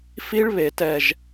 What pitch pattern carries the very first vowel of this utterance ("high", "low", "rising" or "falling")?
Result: high